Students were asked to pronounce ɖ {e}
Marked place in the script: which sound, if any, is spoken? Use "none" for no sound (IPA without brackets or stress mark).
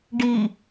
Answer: i